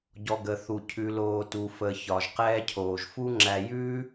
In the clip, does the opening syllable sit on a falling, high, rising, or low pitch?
low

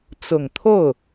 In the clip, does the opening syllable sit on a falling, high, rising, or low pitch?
low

